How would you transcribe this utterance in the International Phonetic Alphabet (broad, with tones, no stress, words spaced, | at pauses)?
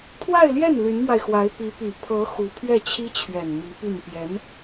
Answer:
pʰwa˥˧ɪ̯ljɛ˥˩n ly˧˥nmwa˧ɪ̯xwa˧˥ɪ̯ pi˧˥ py˨˩pʰɤ˧˥ xu˧˥ pʰɥɛ˥˩t͡ɕʰi˥t͡ɕʰɥɛ˨˩n mi˧˥py˥˩n pjɛ˧˥n